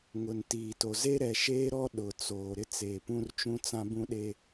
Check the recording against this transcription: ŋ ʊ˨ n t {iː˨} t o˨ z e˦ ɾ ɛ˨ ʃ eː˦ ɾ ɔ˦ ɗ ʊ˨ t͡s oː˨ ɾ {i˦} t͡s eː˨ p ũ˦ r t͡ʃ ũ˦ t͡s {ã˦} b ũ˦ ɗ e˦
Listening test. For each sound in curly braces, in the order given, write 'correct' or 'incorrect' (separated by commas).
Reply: correct, incorrect, correct